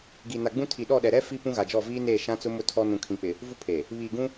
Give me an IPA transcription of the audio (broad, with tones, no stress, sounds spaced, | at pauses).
ɡ i˨ n a˨ ɡ͡b ũ˦ tʰ i˨ ɗ ɔ˦˨ ɗ ɛ˨ ɾ ɛ˦ f i˦ p ũ˦ ɣ a˨ d͡ʒ ɔ˦˨ v iː˦ n eː˦˨ ʃ ã˦ t͡s ʊ˦ m ʊ˦ tʰ ɔ˦ n ũ˨ kʰ ĩ˨ k͡p ɪ˨ | v u˦ pʰ eː˨ | β iː˨ ɡ ũ˦